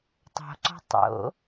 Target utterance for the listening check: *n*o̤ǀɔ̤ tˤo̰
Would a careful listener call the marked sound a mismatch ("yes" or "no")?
yes